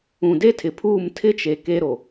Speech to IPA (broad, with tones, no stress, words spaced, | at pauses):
ũ˨de˦tʰɪ˨pʰuː˦˨m tʰɪ˦t͡ʃe˨ ke˦ɾo˨